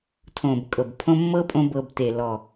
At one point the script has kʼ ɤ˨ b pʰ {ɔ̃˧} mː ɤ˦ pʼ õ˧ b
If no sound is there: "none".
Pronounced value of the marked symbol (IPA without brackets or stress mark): õ˧